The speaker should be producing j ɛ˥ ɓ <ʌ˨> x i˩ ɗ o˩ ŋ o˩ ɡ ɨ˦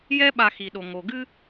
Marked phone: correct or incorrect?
incorrect